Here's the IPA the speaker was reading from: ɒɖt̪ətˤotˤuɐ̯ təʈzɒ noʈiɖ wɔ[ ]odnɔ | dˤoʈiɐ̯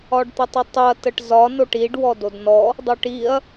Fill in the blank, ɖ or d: d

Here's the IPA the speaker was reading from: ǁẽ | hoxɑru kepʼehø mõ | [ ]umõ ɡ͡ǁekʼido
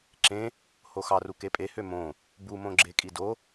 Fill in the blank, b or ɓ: b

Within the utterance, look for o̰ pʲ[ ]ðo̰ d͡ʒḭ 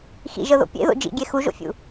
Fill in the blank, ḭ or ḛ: ḛ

